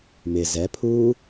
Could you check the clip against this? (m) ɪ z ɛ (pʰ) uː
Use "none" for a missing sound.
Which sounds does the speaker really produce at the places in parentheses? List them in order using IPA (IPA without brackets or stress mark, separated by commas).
m, pʰ